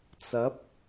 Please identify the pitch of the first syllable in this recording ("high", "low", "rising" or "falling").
rising